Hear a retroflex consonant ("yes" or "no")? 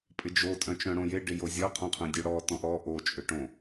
yes